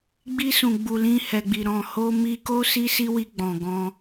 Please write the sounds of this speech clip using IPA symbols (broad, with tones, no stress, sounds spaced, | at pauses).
ɡ͡b i˧ s ũ˨ ɡ͡b u˨ l ĩ˧ h ɛ˨ ɡ͡b i˨ ɾ ɔ̃˨ h o˧ m i˧ k o˦ s i˦ s i˦ w i˧ ɡ͡b ɔ̃˨ ɡ ɔ̃˧